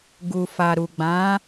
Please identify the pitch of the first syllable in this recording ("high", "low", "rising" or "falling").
low